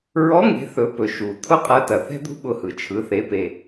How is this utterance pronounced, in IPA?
ɹ ɔ˧˥ ŋ e̤˩˧ θ ɵ˩˧ p ɵ˩ ʃ u˩ t̪ʰ ʊ˥ qʼ ɐ˧˥ t ɐ˩ θ ɛ̤˥ d̪ ṳ˥ ɓ ʊ˧ h ɯ˩ t͡ʃʰ ɯ˩˧ θ e˩˧ p e˩

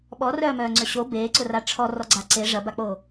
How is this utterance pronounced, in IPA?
ɓ ɔ r œː m œː ŋ͡ǀ ø ɕ o b eː ǀ ʊ r a ʈ͡ʂʰ ɔ r ɔ ɡ͡ǀ a ǀ e ʐ ɐ b a k͡p o

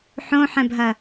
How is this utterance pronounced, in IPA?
ħ õ ħ ɛ̃ bʱ ɐ

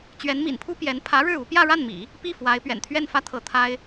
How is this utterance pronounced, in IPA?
t͡ɕ ɥ ɛ˧˥ n m ḭ˨˩ n pʰ u˥ p j ɛ˧˥ n pʰ ä˧˥ ɻ ɻ̩˥˩ u˧˥ p j ä˥˧ ɻ a˥˩ n m ḭ˨˩˦ | p i˥˩ f w a˧˥ ɪ̯ p ɥ ɛ̰˨˩ n t̪ʰ ɥ ɛ˥˩ n f ä˥ t̪ʰ ɤ˥˩ t̪ʰ a˥ ɪ̯

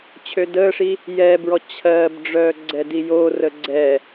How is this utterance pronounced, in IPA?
t͡ɕʰ ø d əː ʂ i | j ɛː b ɹ ɔ t͡ɕʰ ɜ b ɖ͡ʐ œː ɡ͡ǀ ɛ d i j oː r ə ɡ͡ǀ ɛ

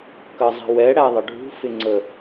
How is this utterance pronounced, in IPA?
k ə zˤ i̤ w ɛ ɽ æ ðˤ ə ɖʱ ṳ f ɪ ŋ͡ǀ ə

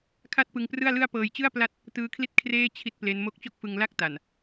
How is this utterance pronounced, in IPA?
kʰ a˥˩ t̚ p ɯ˧ ŋ p r ɯ˥˩ a̯ l ɯ˥˩ a̯ p ɤː˧ j t͡ɕ ɯ˥˩ a̯ p l a˥˩ t̚ | t ɯː˦˥ kʰ l i˥˩ t̚ kʰ r eː˥˩ t͡ɕʰ i˥˩ t̚ p l e˦˥ n m o˦˥ k̚ t͡ɕ o˥˩ k̚ f ɯ˧ ŋ l a˥˩ k̚ t a˨˩ n

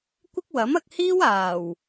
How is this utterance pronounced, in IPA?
kʷ ɪ˥ k̚ w ɐ˨˥ m ɐ˧ k̚ h iː˥ w aː˨˩ w

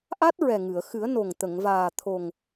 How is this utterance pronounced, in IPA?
ʔ a˦˥ t̚ ɹ ɛ˨˩ ŋ ɨ˨˩˨ ə̯ x ɨ˨˩˦ ə̯ n o˨˩ ŋ t̪ ə˨˩˨ ŋ v aː˨˩ t̪ʰ o˨˩ ŋ

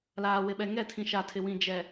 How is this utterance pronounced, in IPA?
l aː˨ w ɪ˨ ɓ ɛ˨ ŋ ɛ˦˨ tʰ ĩ˨ ʃ a˨ tʰ ɪ˨ w ĩ˨ d͡ʒ ɛ˨

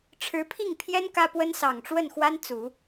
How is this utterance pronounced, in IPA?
ʈ͡ʂʰ ɻ̩˧˥ pʰ i˥˩ ŋ pʰ j ɛ˥ n k ä˥ p w ə˥ n s ɑ˨˩ ŋ ʈ͡ʂ w ə˥˩ n x w a˥ n t͡s u˨˩˦

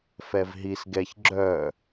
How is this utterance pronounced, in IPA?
f ɛ v ɦ i s ɡ ɛ ç ɡ͡ǁ œ

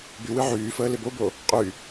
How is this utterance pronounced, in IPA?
b y w ɨ ʕ yː f əː l ɪ b o b o | qʼ y

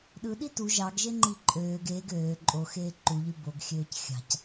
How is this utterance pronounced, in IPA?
ɗ ɯ ɗ i t u ʒ ɑ ɡ ʒ e ŋ͡ǃ i ǃʼ øː ɡ eː ɡ øː ǃʼ o x eː ǃ u ʎ y b o ɡ xʲ øː c xʲ ɑ̤ c

